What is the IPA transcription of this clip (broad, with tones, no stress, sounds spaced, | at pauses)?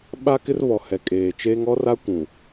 ɓ a˦ k ɪ˦ r β ɔ˨ h ɛ˨ kʼ eː˨ t͡ʃ eː˦ ŋ ɔ˦ r a˦ kʷ ũ˨